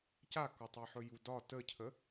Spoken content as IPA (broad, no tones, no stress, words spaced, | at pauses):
cakɒtˤɛħɵ judɒ təcʰə